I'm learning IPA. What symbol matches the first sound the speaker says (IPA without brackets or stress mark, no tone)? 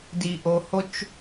d